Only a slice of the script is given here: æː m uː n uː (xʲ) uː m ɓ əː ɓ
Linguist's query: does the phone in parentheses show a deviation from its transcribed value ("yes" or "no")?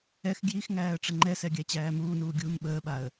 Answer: yes